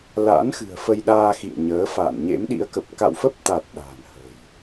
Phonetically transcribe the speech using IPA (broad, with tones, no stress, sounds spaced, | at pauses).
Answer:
l a̰˧˥ n x ɨ̤˨˩ ə̯ f ə˧ j ɗ aː˧ x ḭ˧˨ ə̯ ɲ əː˨˦ f a̰ː˧˨ n ɲ ḛ˧˥ m ɗ ḭ˧˥ ə̯ k ə˨˩ p̚ k a̰˧˨ w f ə˦˥ p̚ t̪ a˨˩ t̚ ɗ a̤ː˨˩ n h ə̤˨˩ j